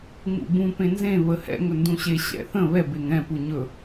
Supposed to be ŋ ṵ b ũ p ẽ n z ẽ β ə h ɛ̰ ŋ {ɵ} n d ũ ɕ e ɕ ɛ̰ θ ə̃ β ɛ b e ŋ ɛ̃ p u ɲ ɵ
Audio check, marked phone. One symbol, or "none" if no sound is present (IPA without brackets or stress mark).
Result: ɵ